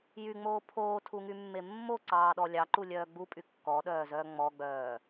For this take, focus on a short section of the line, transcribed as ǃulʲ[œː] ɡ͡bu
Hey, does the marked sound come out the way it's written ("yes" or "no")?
yes